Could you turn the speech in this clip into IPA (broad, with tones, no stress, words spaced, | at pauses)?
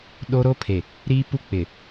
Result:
ɗo˦ ɾo˦ pʰe˨ | ɾiː˦pu˦ k͡pɪ˨